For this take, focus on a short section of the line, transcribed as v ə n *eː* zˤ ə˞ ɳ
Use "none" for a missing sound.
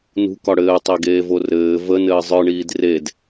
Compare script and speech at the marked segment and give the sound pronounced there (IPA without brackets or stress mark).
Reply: ɘː